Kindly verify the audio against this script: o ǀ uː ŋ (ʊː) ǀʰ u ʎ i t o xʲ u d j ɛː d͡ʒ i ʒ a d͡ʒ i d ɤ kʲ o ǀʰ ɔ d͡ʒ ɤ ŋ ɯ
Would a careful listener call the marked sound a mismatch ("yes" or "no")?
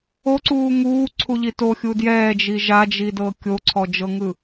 yes